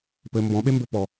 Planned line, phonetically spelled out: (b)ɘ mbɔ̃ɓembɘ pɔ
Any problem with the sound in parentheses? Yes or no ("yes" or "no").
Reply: yes